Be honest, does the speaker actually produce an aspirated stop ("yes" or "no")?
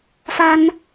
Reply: no